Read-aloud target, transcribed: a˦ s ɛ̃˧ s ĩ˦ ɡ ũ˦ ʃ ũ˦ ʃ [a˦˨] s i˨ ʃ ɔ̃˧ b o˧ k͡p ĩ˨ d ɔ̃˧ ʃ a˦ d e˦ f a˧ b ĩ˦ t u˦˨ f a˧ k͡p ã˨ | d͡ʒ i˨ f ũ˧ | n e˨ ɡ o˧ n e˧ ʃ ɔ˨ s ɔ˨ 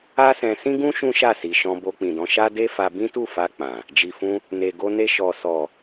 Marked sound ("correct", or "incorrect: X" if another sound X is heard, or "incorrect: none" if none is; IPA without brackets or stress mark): correct